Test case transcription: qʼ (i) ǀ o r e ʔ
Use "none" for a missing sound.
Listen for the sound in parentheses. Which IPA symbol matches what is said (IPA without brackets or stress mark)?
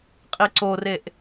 i